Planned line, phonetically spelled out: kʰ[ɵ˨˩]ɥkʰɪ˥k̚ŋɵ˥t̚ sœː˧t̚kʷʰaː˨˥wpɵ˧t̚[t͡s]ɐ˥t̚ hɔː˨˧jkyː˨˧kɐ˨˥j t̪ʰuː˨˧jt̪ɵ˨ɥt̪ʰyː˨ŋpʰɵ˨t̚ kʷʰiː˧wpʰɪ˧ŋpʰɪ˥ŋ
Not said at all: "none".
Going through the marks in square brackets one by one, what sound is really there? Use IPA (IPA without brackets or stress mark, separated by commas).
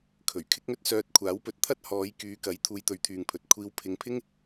ɵ˨˩, t̪ʰ